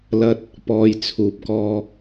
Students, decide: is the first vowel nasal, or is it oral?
oral